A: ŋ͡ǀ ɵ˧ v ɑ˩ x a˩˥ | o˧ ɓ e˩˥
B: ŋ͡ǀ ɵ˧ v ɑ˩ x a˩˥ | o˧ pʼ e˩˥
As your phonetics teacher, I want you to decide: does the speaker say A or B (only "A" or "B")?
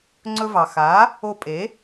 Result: B